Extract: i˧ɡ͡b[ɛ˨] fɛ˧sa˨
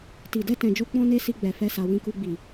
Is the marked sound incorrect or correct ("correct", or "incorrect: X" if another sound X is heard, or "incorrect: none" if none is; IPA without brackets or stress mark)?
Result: correct